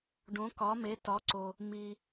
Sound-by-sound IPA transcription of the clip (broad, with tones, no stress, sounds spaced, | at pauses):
ɖ õ˧˥ k ɒ˧˥ m e˧˥ t ɒ˧˥ ǀ o˧ | m i˧